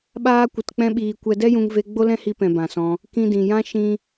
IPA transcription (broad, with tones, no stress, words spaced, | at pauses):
ɓaː˦kʷə˧tk͡pɛ̃˦ɓiː˧ kʷɛ˧dɛ˦jũ˧ŋve˧ ɡ͡bo˦lɛ̃˦hi˧pɛ̃˨ bã˨sɔ̃˧ | kĩ˧dĩ˨jã˦ ʃĩ˦